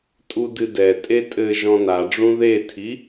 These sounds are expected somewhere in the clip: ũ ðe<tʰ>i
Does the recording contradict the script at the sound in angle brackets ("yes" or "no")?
no